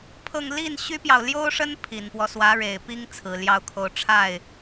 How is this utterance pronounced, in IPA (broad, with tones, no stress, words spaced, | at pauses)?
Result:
pʰɤ˥˧ŋ li˥˩n ɕy˥pjɑ˨ʊ̯ ljo˥ʊ̯ʂə˥n pʰi˨˩npwɔ˦swä˧˥ɻe˨˩ɪ̯ pi˥ŋ t͡sʰɹ̩˨˩ljɑ˥˧ʊ̯kʰo˥˧ʊ̯ ʈ͡ʂʰa˥˩ɪ̯